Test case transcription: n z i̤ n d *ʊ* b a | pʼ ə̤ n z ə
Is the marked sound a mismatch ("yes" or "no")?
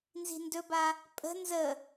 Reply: yes